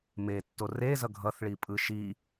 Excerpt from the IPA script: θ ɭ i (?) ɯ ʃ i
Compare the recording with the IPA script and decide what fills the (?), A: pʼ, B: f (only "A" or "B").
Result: A